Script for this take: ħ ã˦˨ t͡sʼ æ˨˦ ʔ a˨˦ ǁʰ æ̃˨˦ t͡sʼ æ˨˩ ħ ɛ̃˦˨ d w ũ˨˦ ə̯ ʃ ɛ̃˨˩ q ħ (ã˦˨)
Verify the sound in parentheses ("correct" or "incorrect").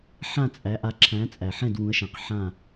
correct